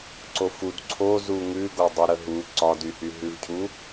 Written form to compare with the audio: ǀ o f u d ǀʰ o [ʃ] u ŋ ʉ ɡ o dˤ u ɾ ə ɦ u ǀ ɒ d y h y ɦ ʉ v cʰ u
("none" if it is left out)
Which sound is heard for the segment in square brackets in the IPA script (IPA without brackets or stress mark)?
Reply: z